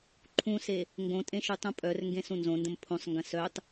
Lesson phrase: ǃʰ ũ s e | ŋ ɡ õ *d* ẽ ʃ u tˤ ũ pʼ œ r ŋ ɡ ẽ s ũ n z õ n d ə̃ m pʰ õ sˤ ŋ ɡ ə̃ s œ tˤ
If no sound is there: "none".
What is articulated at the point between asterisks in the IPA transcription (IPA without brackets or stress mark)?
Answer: tʼ